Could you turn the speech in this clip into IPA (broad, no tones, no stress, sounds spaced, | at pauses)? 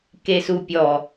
k e s u pʲ ɔ